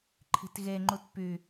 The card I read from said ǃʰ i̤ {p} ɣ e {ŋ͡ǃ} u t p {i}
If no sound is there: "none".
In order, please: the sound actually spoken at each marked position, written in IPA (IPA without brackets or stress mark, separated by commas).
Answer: t, ŋ͡ǃ, y